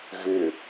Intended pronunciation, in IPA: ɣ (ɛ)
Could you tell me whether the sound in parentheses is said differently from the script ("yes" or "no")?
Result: yes